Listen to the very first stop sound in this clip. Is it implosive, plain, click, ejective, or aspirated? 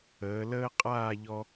ejective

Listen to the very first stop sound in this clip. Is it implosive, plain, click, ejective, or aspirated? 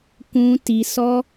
plain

